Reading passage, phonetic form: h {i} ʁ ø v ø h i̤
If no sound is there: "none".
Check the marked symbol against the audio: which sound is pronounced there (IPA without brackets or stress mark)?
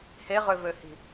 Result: e